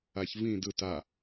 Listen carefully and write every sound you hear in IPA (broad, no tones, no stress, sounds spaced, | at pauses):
a ç v ĩ d ɯ t a